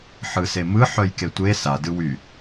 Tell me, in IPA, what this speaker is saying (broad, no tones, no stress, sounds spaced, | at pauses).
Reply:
ħ ɯ s e m ɯ ħ œ j k e tʷ e s a d ɯ w y